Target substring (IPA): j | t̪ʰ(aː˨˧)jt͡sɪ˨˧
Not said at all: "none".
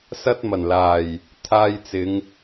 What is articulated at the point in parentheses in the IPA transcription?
aː˧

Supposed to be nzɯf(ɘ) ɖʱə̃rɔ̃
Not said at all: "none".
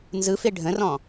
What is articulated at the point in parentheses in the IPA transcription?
e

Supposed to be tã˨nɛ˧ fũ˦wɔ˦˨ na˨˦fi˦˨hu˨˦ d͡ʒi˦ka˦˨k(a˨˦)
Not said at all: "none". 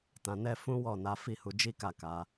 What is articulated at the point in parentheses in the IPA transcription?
a˨˦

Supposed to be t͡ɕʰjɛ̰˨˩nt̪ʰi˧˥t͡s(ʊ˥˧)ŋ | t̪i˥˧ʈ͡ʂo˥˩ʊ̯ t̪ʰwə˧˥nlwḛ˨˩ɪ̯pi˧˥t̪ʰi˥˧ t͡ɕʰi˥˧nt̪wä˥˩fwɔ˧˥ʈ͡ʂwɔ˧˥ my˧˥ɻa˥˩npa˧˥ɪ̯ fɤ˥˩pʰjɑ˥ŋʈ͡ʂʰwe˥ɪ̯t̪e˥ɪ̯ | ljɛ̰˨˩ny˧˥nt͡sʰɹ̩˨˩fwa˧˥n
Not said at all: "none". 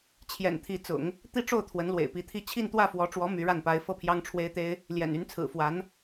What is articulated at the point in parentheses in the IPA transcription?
ʊ̰˨˩˦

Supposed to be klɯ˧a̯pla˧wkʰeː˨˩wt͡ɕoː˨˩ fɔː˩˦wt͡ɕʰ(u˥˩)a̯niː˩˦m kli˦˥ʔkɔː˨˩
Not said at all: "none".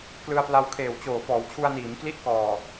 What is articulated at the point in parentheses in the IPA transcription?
u˧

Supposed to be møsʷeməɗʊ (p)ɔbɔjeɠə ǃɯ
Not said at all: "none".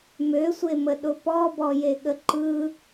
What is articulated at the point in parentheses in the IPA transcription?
p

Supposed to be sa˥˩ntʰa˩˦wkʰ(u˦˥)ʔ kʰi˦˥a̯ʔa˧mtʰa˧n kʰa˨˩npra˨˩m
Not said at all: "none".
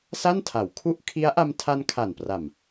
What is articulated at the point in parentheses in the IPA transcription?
u˥˩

